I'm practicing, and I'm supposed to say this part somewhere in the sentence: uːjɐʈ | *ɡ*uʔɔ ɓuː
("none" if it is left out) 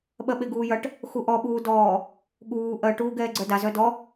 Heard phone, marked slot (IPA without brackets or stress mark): x